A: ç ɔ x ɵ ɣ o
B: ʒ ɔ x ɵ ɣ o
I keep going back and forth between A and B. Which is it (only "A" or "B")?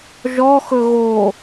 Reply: B